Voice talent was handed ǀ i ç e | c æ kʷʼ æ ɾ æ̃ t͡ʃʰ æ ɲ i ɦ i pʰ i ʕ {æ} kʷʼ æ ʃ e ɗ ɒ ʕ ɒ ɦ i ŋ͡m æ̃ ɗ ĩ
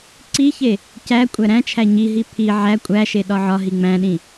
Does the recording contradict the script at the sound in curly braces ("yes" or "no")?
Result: no